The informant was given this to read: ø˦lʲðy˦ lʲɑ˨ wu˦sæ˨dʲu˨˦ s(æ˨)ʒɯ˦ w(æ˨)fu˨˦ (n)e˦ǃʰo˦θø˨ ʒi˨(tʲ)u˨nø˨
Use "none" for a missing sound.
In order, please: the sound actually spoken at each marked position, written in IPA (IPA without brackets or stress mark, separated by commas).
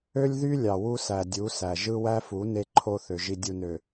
æ˨, æ˦, n, dʲ